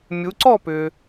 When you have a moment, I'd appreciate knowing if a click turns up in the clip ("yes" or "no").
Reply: yes